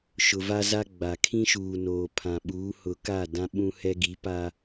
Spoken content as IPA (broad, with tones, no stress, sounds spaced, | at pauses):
ʃ ʊ˨ v a˦ z a˦ ɡ͡b a˨ kʰ ĩ˦ ʃ uː˨ n oː˨ pʰ ã˨ ɓ uː˨˦ h ʊ˨ k a˦˨ d ã˦ ɓ ũ˦ h ɛ˦ ɡ i˨˦ p a˦